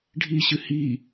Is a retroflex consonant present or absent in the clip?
present